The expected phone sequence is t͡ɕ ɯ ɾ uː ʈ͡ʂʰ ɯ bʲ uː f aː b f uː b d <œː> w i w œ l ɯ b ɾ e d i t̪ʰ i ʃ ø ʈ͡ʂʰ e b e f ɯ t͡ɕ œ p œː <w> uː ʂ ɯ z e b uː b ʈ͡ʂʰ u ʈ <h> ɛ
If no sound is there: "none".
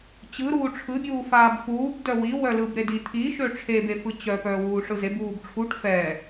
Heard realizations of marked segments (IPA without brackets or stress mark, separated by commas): œ, w, f